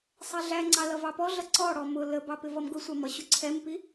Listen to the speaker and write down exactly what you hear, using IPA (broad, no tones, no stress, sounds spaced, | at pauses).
sˤ ɛ ɮ æ ŋ͡ǀ ɑ l ʌ v ɑ p ɔ ɮ ʌ ǀ ɔ ɽ ɔ m ʊ l ə b ɑ p ɪ v ʌ m ɡ ʊ sʷ ɑ m ʌ ɕ ʊ ǀʰ ɛ m p i